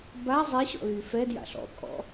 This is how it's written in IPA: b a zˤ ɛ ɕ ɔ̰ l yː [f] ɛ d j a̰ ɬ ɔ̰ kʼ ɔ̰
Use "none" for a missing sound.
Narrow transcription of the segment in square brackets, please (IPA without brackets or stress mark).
f